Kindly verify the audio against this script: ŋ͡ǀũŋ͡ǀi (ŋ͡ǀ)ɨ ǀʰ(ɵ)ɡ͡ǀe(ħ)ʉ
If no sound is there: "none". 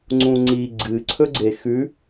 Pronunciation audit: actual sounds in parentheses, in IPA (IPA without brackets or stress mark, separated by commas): ɡ͡ǀ, ɵ, x